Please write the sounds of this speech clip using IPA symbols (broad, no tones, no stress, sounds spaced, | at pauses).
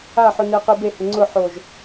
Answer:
a ħ ʊ n e q i b e h ɪ ŋ͡ǀ ʊ ħ o ʒ